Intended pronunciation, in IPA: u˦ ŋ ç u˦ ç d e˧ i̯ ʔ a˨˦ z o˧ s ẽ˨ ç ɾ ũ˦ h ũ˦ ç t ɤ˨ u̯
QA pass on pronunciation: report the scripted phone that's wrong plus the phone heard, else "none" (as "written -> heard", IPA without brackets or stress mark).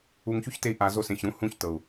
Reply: d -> t